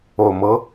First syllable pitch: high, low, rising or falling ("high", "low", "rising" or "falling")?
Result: low